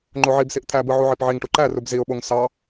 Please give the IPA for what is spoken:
ŋ͡ǃoʕibsiʔ t̪ʰæbɯ ʕuʕipʕiŋʈu ǃærub ziʊ̯ɓoŋ sɑ

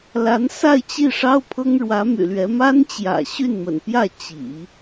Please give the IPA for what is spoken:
la˧˥nsa˥˧ɪ̯t͡ɕi˥˩ʂɑ˥ʊ̯ pʰɤ˥ŋɻwä˧˥my̰˨˩lɥɛ˧˥ ma˥nt͡ɕjä̰˨˩ ɕy˥˩nmə̰˨˩npjä˥˩ t͡ɕḭ˨˩˦

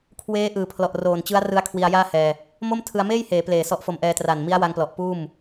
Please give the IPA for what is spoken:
kʰweː˦˥ ʔɯː˨˩pʰlɔ˨˩ʔroː˨˩n t͡ɕɯ˦˥a̯ rɯ˦˥a̯kʰwi˧a̯jaː˥˩hɛː˧ | mo˥˩mtʰɯ˧a̯meː˥˩jheː˩˦ pleː˨˩sɔ˦˥ʔfo˧mʔɛː˧ tra˨˩nmi˦˥a̯wa˧ŋplɔ˨˩ʔ puː˥˩m

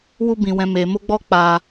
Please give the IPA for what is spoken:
wu˦bĩ˧ wɛ̃˧me˧mo˦ɡ͡bɔ˦ k͡pa˦

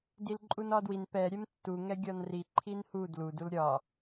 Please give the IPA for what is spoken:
dilǃʼunɒdwin pɛ ɾʲɛmtːu ŋɛɡʲɒnri ǃʰinhu dlu dulɾʲɒ

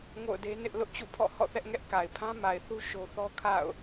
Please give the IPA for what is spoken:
ŋo̰˦˨ʊ̯de˦nɪ˦ʔ lʊ˦ʔt͡ɕṵ˦˨pʰɔ̰˦˨ hɔ̰˦˨θɛ˦ʔŋɛ˦ʔ ka˨ɪ̯pʰã˦ma˨ɪ̯θu˦ ʃo˦ θɔ˦ kʰa̰˦˨ʊ̯

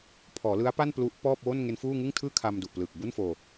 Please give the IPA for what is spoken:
pʰɔː˩˦lɯ˦˥a̯ pa˥˩nplu˦˥ʔ pɔː˥˩p̚ wo˥˩nŋe˦˥nfuː˥˩ ŋɯ˥˩ŋtʰɯː˥˩ kʰa˧mdu˨˩ʔplɯː˨˩k̚ bu˥˩nfoː˧

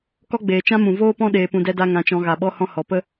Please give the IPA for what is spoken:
kɔ˦ɡ͡beː˨t͡ʃã˦ mũ˨voː˦pɔ̃˦ ɗeː˧pũ˧dɛ˦da˦ ŋã˧t͡ʃɔ̃˧ ɣa˨ɓɔ˧hɔ̃˧ hɔ˨pə˦

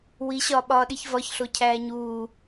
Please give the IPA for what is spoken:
wiɕɒːɓɒː ɗiçvɒçɬo cʰæːɲuː

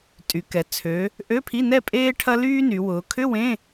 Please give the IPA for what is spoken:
tʼy˩˧ kɛ˩˧ t͡sʰø˩˧ | ʔø˧˥˧pʰi˧˥˧nɛ˥˨ pʼeː˥ ʈʰɐ˥lyː˥ny˩˧wʊː˩˧ kʰʏ˧˥˧ wẽ˧˥˧

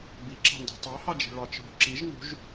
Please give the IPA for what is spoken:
biǁɑ̤ndṳ tˤɑhɑd͡ʒi̤ ɭɑt͡ʃɦṳ ǁiʒ nṳʒ

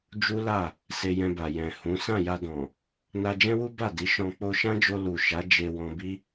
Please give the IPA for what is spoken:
d͡ʒu˦la˦˨ | se˧jɛ̃˧ba˨ jɛ̃˨ hũ˨˦ sã˦˨ja˧dɔ̃˨ | na˧d͡ʒɛ̃˦wu˦ ba˦˨di˨˦ʃɔ̃˧ k͡po˧ʃã˦d͡ʒo˧ lu˨ ʃa˨˦ d͡ʒe˧wɔ̃˧ bi˦

